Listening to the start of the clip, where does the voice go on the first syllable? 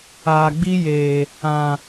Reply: low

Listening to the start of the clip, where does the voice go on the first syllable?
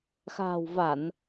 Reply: low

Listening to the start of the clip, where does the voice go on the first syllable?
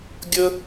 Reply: high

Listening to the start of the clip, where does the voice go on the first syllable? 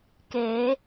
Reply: rising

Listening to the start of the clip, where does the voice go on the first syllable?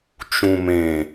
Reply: low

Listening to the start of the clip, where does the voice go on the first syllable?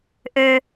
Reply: high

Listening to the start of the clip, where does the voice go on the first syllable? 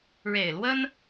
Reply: low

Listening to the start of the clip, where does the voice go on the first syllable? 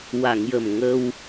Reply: low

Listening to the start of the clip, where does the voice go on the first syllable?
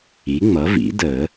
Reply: rising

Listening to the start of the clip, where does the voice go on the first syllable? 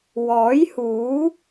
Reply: rising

